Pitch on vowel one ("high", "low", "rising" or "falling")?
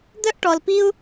high